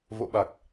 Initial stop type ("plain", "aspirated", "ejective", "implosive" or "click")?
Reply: implosive